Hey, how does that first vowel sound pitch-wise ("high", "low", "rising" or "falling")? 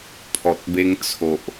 low